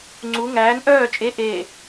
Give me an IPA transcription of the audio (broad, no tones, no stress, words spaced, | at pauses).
ŋ͡ǀu ŋæːn ʔœː t͡ʃʼe ʔeː